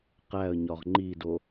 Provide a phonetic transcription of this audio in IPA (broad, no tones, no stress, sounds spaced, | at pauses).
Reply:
q æ ə̯ ɲ ɒ ʁ ŋ͡ǃ i d o